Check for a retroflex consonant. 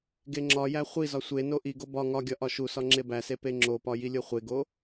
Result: absent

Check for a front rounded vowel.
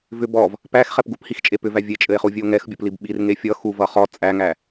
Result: present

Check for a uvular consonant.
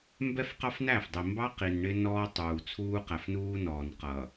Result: present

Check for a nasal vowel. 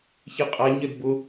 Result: absent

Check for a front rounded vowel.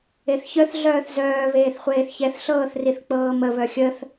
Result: present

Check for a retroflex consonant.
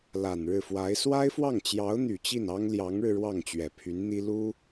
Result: present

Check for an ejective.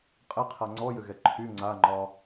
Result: present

